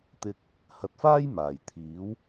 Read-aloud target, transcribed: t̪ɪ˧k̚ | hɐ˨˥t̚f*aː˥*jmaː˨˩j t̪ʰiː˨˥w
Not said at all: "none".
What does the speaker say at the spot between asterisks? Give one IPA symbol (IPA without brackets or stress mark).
aː˥